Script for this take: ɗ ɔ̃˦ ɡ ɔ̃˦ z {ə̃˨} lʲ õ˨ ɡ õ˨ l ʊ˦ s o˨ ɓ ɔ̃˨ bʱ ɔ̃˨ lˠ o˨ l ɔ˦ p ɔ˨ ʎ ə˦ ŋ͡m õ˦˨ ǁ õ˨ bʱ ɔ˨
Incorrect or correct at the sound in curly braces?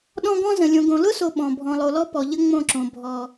correct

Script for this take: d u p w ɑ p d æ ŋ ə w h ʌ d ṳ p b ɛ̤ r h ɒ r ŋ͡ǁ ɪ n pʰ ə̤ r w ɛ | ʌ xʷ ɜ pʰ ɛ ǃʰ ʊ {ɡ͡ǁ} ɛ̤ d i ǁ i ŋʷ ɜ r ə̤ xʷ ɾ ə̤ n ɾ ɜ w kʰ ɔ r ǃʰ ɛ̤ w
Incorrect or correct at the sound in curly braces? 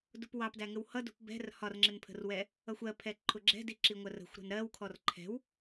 correct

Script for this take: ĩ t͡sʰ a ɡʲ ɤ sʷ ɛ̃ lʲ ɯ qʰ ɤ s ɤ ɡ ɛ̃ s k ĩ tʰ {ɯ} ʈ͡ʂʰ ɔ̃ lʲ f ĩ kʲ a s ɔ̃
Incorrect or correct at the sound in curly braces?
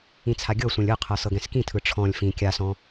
correct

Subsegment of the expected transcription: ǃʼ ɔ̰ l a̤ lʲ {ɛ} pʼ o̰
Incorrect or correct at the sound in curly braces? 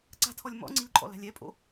correct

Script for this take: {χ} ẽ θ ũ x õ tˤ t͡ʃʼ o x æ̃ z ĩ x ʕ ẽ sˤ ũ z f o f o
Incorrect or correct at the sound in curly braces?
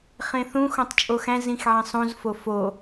correct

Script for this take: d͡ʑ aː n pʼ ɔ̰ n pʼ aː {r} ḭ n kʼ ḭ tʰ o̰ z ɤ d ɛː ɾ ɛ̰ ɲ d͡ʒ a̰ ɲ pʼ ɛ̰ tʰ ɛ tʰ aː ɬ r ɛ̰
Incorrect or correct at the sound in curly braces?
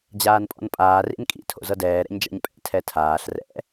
correct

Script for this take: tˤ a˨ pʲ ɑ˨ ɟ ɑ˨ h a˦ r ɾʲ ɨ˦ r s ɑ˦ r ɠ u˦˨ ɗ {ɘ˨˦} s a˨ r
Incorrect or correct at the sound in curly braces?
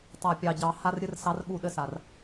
incorrect: ɘ˦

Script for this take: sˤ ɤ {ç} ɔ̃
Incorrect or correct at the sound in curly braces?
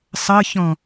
correct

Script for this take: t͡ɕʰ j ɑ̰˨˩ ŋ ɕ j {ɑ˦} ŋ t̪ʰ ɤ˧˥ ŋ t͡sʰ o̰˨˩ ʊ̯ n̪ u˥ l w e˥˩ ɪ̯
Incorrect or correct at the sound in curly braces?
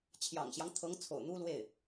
correct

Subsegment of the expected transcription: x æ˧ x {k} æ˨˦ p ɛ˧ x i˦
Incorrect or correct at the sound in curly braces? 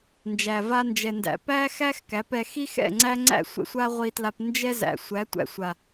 correct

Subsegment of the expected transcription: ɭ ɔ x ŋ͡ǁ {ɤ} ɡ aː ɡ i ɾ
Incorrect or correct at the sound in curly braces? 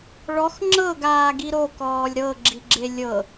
correct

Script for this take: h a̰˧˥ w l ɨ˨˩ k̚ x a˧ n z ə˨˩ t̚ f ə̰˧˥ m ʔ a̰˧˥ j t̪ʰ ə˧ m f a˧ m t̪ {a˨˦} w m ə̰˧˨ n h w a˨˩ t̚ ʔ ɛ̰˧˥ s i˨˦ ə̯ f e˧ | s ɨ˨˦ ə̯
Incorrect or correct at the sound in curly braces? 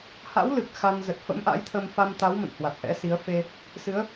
correct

